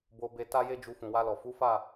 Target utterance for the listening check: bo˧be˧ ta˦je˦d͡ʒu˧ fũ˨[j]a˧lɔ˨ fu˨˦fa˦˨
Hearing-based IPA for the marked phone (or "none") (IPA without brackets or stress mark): w